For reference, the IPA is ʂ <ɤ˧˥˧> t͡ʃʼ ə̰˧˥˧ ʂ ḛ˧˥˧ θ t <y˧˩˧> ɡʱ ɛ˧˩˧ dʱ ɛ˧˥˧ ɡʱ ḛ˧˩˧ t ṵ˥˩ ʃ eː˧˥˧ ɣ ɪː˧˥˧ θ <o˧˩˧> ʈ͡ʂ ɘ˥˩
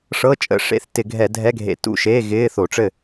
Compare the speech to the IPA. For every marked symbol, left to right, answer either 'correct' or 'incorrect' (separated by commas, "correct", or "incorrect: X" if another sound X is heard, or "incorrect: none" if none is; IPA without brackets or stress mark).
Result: correct, incorrect: ɪ˧˩˧, correct